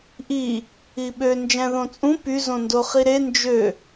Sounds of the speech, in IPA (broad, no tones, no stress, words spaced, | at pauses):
ʔi | iɓø nd͡ʒæ̃ðõt͡sʼũ py zõndoχiɾe nd͡ʒø